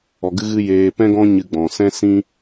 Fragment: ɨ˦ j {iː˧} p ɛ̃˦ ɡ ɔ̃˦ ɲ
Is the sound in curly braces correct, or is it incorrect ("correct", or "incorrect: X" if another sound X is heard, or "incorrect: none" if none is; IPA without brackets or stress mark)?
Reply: incorrect: eː˧